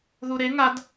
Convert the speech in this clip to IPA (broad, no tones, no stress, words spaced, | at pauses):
ðuɾe ŋad